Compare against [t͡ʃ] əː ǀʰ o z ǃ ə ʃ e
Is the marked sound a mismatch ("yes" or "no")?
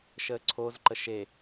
yes